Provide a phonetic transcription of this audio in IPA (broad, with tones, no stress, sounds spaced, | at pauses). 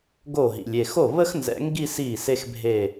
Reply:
ɡ o˥˩ ɦ ḭ˨ lʲ e˥˩ x o˥˩ β ə˥ x n z ɛ̰˨˩˦ ŋ ɡ i˥˧ s i˥˩ s e˥ x bʱ e˥˧